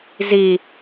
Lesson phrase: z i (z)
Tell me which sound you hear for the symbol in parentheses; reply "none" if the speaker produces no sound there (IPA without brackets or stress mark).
none